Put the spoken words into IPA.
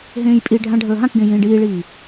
ɦ ẽː j pʼ i ɖʱ ã ɖʱ əː ɦ ã k ɡ ẽ j ĩː ɖ iː ɭ iː

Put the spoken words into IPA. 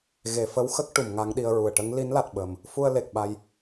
ɣ e˨˩˨ f ə˧˥ w x ə˦˥ k̚ ʈ u˨˩˨ m ŋ a˧˥ ŋ ɗ i˧ ə̯ ɹ u˨˩ ə̯ ʈ ə˧˥ ŋ l i˧˥ n l a˨˩ t̚ ɓ ə˨˩ m | f u˧ ə̯ l e˨˩ k̚ ɓ a˧ j

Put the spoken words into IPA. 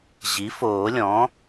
ʑ i˩˥ f oː˨˩˦ lʲ ɔ̃˩˥

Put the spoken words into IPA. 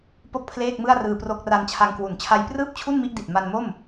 p o˥˩ k̚ pʰ l eː˥˩ k̚ m ɯ˥˩ a̯ r ɯː˧ p r o˦˥ k̚ r a˧ n t͡ɕʰ a˧ ŋ k w u˩˦ n t͡ɕʰ a˦˥ j p r ɯː˥˩ p̚ t͡ɕʰ u˥˩ n m i˦˥ ʔ d i˨˩ t̚ m a˧ n m o˥˩ m

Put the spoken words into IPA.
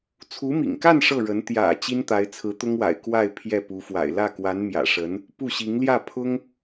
t͡sʰ u˧˥ m ḭ˨˩ ŋ k a˥˧ n ʂ ɤ˥˩ ɻ ə˧˥ n t̪ j ä̰˨˩ t͡ɕ i˥ n t̪ a˧˥ ɪ̯ t͡sʰ ɹ̩˧˥ t̪ ʊ˥ ŋ w a̰˨˩ ɪ̯ k w a˥˧ ɪ̯ pʰ j ɛ˥˩ p u˧˥ f w a̰˨˩ ɪ̯ l ä˥˩ k w a˧˥ n m j ä̰˨˩ ʂ ə˧˥ n | p u˥˩ ɕ i˧˥ ŋ l j ä˥˩ pʰ ʊ˥ ŋ

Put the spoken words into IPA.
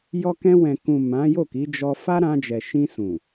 j ɔ˧ k ɛ̃˧ w ɛ̃˨ k ũ˨ m ã˨˦ j o˦˨ k i˨˦ d͡ʒ ɔ˧ f a˦ ɾ ã˧ d͡ʒ ɛ˨ ʃ ĩ˧ s ũ˨

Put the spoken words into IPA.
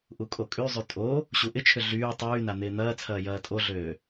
ʔ u kʼ o kʼ y zˤ y tʼ o | ɕ u ʔ ɪ t͡ʃʰ ʏ ɮ yː tˤ yː n a n̪ ɪː n̪ ɐː t͡sʰ ɐː j ɐː tʼ o ɮ øː

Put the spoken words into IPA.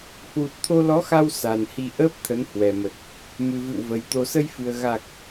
h w u˨˩ t̚ t̪ʰ o˧ l ɔ˨˦ x a˧ w s a˨˩ n h i˧ ʔ əː˦˥ p̚ t̪ʰ ə˨˦ n h w ɛ˨˩ m ə˨˩ t̚ | m ɨ˨˩ v ɨ̰˧˨ w v ə˨˩ j t̪ o˨˩ s ə˧ j f ɨ˨˩ ə̯ ɣ a˨˩ k̚

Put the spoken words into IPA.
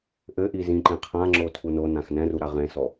ʔ ɘ ʔ i z ĩ ǃ ẽ qʰ ã ŋ͡ǁ o tʰ u n o n ã x n ɛ̃ r u ɾ a ʁ ẽ s ɔ

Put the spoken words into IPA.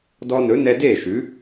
d ɔ˧ n ɵ˩˥ n ɛ˧ d eː˥˩ ʃ ʉ˩˥

